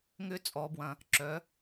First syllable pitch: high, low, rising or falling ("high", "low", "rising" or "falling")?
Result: high